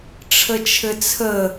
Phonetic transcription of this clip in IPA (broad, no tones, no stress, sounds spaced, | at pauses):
ʈ͡ʂʰ ə t͡ʃʰ ɘ t͡sʰ ə